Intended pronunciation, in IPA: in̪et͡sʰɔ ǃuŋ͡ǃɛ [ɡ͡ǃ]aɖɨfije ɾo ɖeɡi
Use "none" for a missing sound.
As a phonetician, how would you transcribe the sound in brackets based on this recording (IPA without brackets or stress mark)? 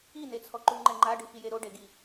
ŋ͡ǃ